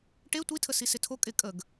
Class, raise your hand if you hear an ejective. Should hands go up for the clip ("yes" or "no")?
yes